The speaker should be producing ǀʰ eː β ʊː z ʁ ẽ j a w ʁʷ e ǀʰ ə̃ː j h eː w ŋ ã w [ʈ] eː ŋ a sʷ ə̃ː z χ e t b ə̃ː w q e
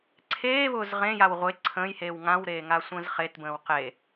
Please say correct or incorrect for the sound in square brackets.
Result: incorrect